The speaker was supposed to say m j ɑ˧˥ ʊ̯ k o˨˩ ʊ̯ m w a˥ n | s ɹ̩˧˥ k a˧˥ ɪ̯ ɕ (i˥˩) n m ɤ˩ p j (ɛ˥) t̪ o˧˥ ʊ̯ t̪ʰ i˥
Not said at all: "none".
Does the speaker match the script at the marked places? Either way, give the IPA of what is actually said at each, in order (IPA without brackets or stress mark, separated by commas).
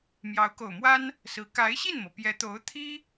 i˥˩, ɛ˧˥